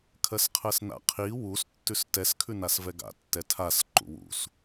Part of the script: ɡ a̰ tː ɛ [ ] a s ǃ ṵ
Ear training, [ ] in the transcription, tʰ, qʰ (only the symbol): tʰ